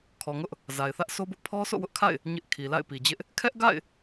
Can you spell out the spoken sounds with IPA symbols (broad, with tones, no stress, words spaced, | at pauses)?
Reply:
kʰɔ˨ŋʊ˦ʔ | za˨ɪ̯θä˦ʔso˦bʊ˦ʔ pʰɔ˦so̰˦˨wʊ˦ʔkʰa̰˦˨ɪ̯ | ɲɪ˦ʔ kʰi˨la̰˦˨ɪ̯pi˨d͡ʑɪ˦ʔ | kʰɛ˦ʔɡa̰˦˨ɪ̯